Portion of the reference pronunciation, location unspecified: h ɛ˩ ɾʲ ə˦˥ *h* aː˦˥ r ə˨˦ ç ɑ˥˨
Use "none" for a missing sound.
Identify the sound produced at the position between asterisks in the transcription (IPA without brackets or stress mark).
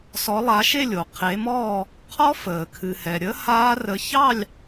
h